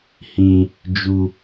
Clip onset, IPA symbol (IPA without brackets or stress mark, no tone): h